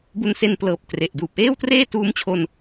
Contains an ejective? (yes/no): no